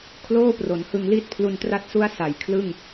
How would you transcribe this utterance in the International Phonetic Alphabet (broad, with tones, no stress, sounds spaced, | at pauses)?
kʰ l oː˥˩ p r o˩˦ n h ɯ˧ ŋ l iː˥˩ t̚ pʰ l u˧ n t r a˦˥ t̚ s u˦˥ a̯ s a˩˦ j kʰ l ɯ˥˩ ŋ